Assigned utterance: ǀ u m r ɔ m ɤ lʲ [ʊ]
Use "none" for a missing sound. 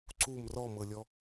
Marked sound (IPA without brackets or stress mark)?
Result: ɔ